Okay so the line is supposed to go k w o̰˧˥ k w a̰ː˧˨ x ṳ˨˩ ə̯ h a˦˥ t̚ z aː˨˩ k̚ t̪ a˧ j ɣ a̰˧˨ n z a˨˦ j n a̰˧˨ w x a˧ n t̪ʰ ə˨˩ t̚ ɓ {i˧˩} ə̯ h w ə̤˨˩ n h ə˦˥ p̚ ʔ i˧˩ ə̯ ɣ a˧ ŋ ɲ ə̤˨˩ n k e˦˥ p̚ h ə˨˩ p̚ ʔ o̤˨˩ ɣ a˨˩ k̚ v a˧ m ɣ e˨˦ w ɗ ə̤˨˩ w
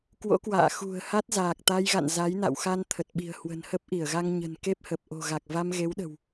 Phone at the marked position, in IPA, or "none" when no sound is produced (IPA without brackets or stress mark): i̤˨˩